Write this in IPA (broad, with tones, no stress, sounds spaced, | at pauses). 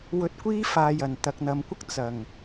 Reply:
w ɵ˧ t̚ kʷ iː˥ f aː˨ j ɐ˨˩ n t̪ ɐ˨ k̚ n̪ ɐ˨˧ m kʷ ɐ˥ k̚ t͡s ɐ˨˩ ŋ